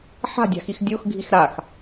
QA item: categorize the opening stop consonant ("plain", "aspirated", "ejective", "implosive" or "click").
plain